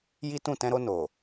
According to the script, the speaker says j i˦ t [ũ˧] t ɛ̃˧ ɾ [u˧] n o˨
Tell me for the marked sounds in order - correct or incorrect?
incorrect: ũ˦˨, incorrect: o˧

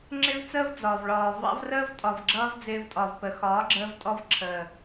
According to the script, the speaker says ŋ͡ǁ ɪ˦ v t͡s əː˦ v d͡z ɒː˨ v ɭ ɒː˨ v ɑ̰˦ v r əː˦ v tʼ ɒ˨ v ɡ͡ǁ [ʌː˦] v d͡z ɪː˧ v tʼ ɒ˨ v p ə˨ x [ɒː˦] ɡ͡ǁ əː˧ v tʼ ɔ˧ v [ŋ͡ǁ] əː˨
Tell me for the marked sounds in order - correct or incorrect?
correct, incorrect: ɒː˨˦, incorrect: ǁʰ

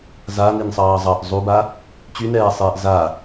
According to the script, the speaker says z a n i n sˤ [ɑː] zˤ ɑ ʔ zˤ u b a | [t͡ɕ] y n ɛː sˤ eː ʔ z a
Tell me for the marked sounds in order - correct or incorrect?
correct, correct

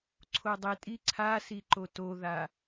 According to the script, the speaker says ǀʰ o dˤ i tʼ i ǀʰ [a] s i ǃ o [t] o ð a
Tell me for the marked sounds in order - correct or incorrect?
correct, correct

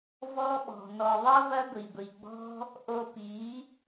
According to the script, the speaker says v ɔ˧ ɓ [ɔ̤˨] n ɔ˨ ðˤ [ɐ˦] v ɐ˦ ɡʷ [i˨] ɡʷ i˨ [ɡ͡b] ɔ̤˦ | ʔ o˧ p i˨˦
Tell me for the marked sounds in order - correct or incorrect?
correct, correct, correct, correct

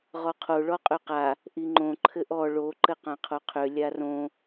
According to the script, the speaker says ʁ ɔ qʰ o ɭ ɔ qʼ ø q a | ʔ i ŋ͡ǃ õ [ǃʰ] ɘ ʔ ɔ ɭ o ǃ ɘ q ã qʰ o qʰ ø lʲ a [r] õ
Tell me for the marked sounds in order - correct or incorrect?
correct, correct

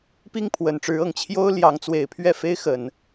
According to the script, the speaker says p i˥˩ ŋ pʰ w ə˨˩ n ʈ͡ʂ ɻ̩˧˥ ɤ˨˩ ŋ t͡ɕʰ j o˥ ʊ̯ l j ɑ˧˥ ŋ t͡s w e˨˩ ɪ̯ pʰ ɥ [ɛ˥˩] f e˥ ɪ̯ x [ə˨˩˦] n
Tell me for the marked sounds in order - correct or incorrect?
correct, correct

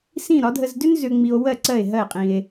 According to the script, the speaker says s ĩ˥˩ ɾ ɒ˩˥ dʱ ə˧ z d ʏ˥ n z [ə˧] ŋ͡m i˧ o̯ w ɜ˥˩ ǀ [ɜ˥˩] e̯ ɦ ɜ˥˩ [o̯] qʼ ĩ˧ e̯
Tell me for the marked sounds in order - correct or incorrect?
incorrect: ʏ˧, correct, incorrect: e̯

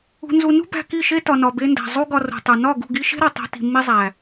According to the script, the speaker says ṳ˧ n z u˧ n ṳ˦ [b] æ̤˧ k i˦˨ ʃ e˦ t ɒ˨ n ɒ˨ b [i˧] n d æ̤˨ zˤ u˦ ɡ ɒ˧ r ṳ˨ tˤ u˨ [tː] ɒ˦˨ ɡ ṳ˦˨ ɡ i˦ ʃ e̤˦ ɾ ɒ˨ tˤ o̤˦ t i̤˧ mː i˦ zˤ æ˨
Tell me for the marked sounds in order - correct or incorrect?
correct, incorrect: e˧, incorrect: n

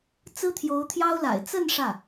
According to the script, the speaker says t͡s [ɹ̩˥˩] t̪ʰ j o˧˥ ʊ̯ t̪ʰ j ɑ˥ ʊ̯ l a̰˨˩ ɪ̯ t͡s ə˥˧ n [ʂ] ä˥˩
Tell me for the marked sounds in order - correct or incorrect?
incorrect: ɹ̩˥, correct

